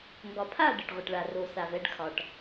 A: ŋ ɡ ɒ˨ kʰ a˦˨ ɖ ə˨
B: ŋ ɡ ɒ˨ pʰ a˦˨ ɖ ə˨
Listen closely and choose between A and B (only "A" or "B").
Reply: B